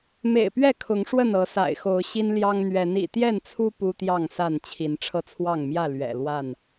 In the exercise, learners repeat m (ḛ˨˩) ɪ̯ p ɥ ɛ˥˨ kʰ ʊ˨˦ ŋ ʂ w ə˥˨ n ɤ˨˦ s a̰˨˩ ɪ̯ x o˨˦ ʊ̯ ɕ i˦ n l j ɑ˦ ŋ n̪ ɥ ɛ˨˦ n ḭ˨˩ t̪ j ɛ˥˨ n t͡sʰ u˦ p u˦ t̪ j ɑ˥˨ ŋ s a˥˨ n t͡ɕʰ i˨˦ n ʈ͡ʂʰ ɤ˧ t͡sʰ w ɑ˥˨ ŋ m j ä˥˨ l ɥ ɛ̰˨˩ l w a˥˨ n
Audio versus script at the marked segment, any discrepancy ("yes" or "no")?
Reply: no